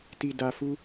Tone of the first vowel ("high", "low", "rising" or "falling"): low